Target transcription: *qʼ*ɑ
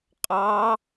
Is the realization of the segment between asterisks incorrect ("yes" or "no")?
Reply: no